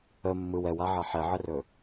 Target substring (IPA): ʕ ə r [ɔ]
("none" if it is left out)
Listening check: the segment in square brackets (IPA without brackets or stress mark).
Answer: ɵ